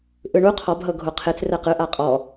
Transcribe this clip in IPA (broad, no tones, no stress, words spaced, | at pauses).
ʔɯɳu qʰɔb ɦɤɡʱoqʰet͡s rɛqɯ ʔaqʼɔ